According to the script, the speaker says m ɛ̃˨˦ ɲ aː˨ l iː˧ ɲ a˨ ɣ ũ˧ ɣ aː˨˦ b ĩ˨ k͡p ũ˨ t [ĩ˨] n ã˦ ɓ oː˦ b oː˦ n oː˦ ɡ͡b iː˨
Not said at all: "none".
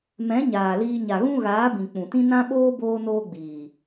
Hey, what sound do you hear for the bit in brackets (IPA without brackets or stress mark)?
ĩ˦